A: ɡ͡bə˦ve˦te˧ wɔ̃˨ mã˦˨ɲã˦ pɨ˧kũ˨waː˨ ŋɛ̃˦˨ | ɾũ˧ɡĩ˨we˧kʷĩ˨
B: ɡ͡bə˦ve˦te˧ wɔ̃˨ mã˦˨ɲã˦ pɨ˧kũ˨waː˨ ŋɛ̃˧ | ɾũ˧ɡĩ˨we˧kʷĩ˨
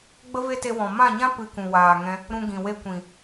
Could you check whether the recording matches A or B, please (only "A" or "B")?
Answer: B